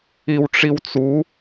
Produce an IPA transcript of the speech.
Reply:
i w ʈ͡ʂ i w t͡s u

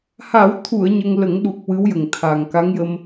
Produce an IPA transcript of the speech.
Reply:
h a˨˩˦ w t̪ʰ u˨˩˨ ə̯ ɲ ə˧ ŋ l ə˨˩˦ ŋ ɗ u˨˩ k̚ w ɨ˧˥ w j ə˨˩ ŋ t̪ʰ a˨˩ ŋ k a˧˥ ŋ j ə˧ m

